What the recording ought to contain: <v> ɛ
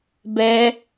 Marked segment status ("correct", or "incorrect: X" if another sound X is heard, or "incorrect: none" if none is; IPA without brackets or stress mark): incorrect: b